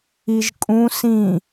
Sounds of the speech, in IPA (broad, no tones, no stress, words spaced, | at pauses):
iʒkʼũ sĩ